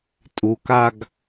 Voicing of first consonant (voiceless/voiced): voiceless